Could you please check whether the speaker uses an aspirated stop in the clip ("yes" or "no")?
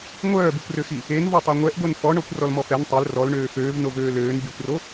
no